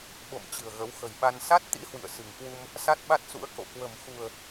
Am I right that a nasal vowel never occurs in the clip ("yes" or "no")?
yes